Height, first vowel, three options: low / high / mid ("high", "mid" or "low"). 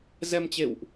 mid